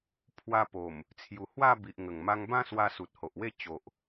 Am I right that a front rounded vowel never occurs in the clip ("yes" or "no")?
yes